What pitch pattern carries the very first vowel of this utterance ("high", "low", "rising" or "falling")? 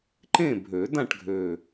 falling